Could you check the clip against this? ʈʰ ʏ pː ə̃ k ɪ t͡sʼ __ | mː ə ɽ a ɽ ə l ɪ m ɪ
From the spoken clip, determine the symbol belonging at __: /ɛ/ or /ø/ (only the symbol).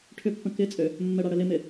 ø